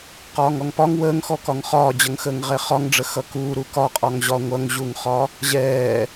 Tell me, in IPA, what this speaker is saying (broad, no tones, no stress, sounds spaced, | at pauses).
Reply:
q ɒː ŋ ɔ ŋ p ɒ ŋ w əː ŋ x ɔ k ɒ ŋ χ ɒː d͡ʑ ʌ ŋ x əː ŋ ʁ ɛ χ ɒ ŋ ɖ͡ʐ ə x ʌ k uː ɾ u k ɒ qʼ ɒ ŋ ʑ ɒ ŋʷ ʌ ŋ ʑ u ŋ χ ɒ | ʑ ɛː